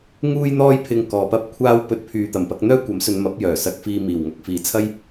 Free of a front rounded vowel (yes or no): no